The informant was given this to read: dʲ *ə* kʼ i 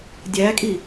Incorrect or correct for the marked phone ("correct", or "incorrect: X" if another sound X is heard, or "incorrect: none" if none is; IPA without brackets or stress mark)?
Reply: incorrect: æ